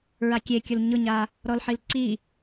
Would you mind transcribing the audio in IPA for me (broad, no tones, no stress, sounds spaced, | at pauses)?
ɹ a kʲ e kʲ ʊ l ɲ ʊ ɲ a | ɾ ɔ l ħ i l ǀ i